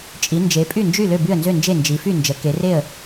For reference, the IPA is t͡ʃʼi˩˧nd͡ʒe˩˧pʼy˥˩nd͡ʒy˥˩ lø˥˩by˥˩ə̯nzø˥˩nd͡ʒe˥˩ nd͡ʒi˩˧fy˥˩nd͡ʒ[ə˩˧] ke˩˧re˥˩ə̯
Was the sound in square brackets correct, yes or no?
yes